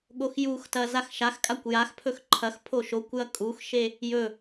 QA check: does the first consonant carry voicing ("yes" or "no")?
yes